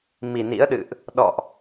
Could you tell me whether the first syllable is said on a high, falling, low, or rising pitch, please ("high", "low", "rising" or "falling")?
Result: low